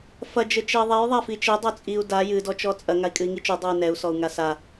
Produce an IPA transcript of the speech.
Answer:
f ɐ d͡ʒ ɘ t͡ʃ ɛ i̯ ðˤ ɛ j ðˤ a f i t͡ʃ e dˤ o t͡sʼ i u̯ d a j ɨ d ɔ t͡ʃ ɔ t͡sʼ ɐ ŋ a i̯ kʼ ɨ i̯ ŋ i t͡ʃ u dˤ u j n ɛ u̯ s ɔ u̯ ŋ a s a

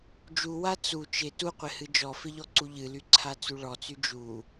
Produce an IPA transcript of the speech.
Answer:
d͡ʒ u w a t͡s u t͡ʃ ɪ t u qʷ ɪ h ɨ d͡ʒ ɔ f ɪ ʎ ɔ ǀ u ʎ ɨ l y ǀʰ a t͡s u ɭ ɔ t͡s y d͡ʒ u

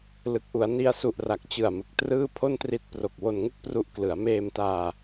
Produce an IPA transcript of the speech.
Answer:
l ɯ˨˩ k̚ ʔ u˩˦ a̯ n i˧ a̯ s u˨˩ ʔ r a˨˩ k̚ t͡ɕ ɯ˨˩ a̯ m ɯ˨˩ k̚ t r ɯː˥˩ pʰ o˥˩ n t r i˦˥ t̚ p r o˨˩ k̚ w o˧ n ŋ u˥˩ k̚ p r u˦˥ ʔ k l ɯ˩˦ a̯ m eː˧ m t aː˧

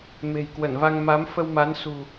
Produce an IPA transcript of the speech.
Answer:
m e̤˨˩ j k w ə˧˩ n v a˧ ŋ m a˨˦ m f ə˧ w m a˨˦ n s ṳ˨˩

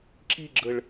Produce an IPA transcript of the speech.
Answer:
ǁ i ɡ͡ǁ ə ɭ

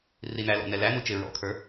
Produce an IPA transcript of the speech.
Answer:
r i n æ l ɔ̰ n ɛ l æ n u t͡ʃ ɪ ɹ ɔ̰ kʰ ə˞

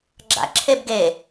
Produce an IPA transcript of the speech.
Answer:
ɡ͡ǁ a̰ ǁʰ e b ɡ e

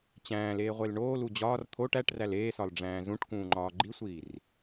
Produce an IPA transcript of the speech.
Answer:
t͡ɕ æ̃ː l eː ʁʷ e l ɳ oː l u d͡ʑ ɒː r t̪ʰ oː ʈ æ ʈ r æ l eː s ɒ l ɖ͡ʐ æ̃ː z ũ ʈ k ũː ŋ͡ǃ ɒː ɡ͡ǃ i sʷ iː r

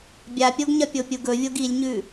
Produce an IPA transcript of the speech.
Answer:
bʲ a pʲ o ɡ ɲ ɐ pʲ o pʲ u ɡ ɵ vʲ o ɡ i lʲ ɲ ʉ

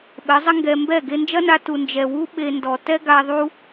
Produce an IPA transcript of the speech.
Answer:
ɓ ɘ˨˦ zˤ ɘ˦ ŋ ɡ ɛ˧ m b ɛ˦˨ ɡ e˧ n d͡ʒ ɐ˦ n a˧ t u˨ n d͡ʒ ɛ˨ w u˦ ɓ e˧ n d ɔ˨ t ɛ˦ ɡ a˧ ðˤ u˦

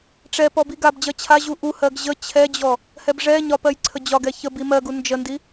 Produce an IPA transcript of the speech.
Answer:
ʈ͡ʂ ɛ p ɔ b i ɡ a b d͡ʑ ɜ t͡ɕʰ a ʑ u ʔ u h ɜ ɡ ʑ ə t͡ɕʰ ɛ d͡ʑ ɔ | h ɛ b ʐ ɛ ɲ ɒ p ɜ j ǀʰ ə d͡ʑ ɒ ɡ ɛ ç ə b i m ɜ ɡ u n d͡ʒ ə n d i

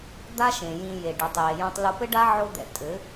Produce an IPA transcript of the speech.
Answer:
d̪ a˦ ʃ ẽ˨ j ĩ˧ j e˨ ɖ i˨ tˤ j e˨ j õ˧ tˤ l u˧ p ɘ˦ ɖ a˦ ʕ o˦ d̪ ɛ̰˧ tʼ ɘ˨˦

